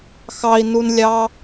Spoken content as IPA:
x ɑ i̯ n u n lʲ ɑ

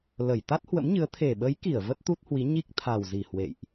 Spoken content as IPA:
l ə˧˩ j t̪ a˦˥ t̚ h w ə̰˧˥ m ɲ ɨ˨˦ ə̯ t̪ʰ e˨˩ ɓ ə˨˦ j k i˧˩ ə̯ v ə˦˥ t̚ t̪ u˦˥ t̚ h w i˨˦ ɲ i˦˥ k̚ t̪ʰ a˨˩ w z i˧˩ h w ḛ˧˨ j ʔ

